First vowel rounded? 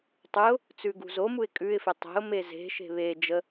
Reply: yes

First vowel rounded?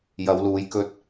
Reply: no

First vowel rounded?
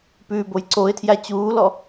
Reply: yes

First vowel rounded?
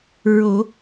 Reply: yes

